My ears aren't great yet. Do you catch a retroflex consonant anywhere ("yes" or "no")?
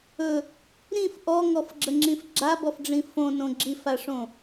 yes